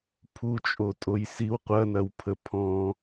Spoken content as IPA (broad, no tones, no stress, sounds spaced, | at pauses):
pʰ u t͡ʃʼ o tʼ o j s i w qʷ ɐ n ɐ w pʰ ə pʰ ɔ̃